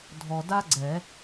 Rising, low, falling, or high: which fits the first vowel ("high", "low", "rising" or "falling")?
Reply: low